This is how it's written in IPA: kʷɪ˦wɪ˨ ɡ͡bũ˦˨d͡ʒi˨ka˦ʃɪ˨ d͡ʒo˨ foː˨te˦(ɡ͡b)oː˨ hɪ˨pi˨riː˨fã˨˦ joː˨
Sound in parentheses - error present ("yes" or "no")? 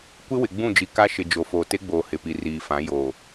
no